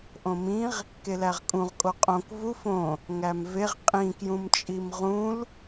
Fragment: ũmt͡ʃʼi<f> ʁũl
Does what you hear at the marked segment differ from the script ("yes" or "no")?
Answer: yes